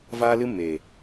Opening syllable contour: high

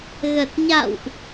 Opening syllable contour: low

